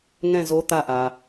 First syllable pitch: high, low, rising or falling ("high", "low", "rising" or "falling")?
falling